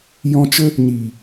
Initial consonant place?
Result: palatal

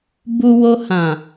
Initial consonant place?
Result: labial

